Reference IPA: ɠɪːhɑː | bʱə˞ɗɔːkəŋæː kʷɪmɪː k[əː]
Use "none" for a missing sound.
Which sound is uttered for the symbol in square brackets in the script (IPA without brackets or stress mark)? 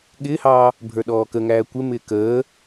əː